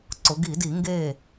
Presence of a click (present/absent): present